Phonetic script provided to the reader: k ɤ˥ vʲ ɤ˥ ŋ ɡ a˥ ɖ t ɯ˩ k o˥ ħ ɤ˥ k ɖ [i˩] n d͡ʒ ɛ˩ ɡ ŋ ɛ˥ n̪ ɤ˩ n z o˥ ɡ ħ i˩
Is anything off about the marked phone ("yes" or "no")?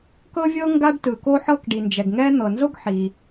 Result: no